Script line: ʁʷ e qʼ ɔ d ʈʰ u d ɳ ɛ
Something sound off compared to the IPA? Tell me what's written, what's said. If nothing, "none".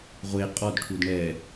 none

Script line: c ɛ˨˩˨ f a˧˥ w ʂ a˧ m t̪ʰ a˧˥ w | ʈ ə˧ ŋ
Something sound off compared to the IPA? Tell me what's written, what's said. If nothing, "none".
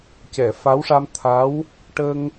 none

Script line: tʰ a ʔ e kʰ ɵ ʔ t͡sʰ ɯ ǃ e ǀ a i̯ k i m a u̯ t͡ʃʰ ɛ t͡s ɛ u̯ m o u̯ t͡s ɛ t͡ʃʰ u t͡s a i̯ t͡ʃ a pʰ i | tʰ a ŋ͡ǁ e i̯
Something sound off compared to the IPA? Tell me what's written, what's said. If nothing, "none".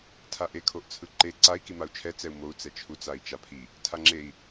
ɵ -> o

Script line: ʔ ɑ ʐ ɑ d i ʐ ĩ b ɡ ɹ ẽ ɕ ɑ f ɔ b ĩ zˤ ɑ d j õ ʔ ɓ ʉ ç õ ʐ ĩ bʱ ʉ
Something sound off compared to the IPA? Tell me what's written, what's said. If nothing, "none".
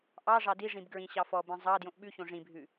ẽ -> ĩ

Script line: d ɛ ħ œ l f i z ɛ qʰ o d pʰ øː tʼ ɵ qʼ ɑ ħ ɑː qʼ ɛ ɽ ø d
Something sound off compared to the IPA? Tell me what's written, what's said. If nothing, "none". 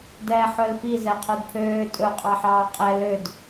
ɽ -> l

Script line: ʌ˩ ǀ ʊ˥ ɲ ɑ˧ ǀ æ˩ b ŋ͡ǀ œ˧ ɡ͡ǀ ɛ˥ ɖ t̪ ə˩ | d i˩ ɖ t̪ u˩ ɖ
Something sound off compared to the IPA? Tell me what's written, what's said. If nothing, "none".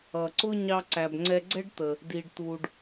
œ˧ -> ɛ˧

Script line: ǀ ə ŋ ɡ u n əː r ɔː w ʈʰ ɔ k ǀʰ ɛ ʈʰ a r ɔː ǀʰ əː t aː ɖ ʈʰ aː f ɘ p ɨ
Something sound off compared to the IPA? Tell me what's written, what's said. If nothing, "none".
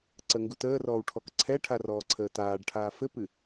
n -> t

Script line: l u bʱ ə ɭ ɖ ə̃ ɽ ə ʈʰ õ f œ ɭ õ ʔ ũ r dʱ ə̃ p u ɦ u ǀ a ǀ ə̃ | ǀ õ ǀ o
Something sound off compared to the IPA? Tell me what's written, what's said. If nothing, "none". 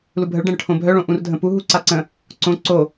f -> bʱ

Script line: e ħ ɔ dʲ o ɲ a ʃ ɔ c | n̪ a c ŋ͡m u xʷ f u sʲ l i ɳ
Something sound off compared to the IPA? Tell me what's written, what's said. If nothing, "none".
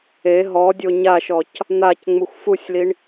ħ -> ɦ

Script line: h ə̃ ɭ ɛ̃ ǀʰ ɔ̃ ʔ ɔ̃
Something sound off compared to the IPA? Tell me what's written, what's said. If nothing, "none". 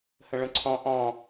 ɛ̃ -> ə̃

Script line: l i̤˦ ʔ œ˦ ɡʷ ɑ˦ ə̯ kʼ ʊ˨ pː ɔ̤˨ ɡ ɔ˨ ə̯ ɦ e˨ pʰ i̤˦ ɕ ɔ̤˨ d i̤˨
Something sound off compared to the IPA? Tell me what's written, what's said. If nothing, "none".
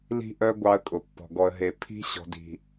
none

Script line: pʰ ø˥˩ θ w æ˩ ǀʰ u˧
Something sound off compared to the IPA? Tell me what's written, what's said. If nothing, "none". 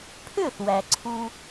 none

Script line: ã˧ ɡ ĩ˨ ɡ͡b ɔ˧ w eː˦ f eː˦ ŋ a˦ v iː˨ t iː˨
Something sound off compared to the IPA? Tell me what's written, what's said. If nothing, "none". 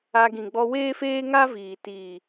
ã˧ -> a˧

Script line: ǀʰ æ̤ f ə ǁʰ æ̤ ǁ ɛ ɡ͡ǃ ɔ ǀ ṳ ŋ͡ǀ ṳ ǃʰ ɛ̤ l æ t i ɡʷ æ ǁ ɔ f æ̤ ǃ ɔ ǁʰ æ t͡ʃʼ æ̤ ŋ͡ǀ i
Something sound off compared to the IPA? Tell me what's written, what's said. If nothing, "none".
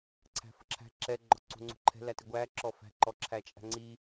none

